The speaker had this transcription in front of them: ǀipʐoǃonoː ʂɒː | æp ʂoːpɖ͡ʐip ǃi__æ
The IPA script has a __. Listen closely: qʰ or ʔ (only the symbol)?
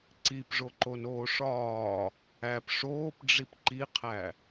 qʰ